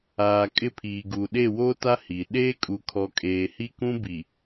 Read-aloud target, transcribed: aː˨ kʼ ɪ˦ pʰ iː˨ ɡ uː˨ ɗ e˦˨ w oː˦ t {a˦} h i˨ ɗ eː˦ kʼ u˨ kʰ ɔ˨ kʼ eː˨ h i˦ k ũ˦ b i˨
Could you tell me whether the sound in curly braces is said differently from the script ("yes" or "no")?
no